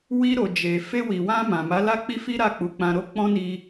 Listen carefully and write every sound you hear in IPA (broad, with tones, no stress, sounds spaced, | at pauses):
w i˧ ɾ o˨ d͡ʒ e˨ f e˧ w i˨ w ã˧ m ã˨ m a˨˦ l a˦ k͡p i˦ f i˦ ɾ a˦˨ k͡p u˨˦ k͡p ã˧ ɾ o˦ k͡p ɔ̃˦ n i˧